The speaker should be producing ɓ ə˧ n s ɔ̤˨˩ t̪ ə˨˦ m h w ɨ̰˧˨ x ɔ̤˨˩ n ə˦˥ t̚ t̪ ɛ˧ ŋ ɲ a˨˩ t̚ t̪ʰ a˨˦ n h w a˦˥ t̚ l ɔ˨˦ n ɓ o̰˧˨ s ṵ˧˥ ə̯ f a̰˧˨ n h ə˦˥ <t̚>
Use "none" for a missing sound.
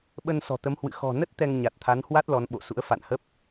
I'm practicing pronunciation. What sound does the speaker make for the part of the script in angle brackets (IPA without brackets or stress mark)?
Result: p̚